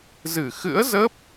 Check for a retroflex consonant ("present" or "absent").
absent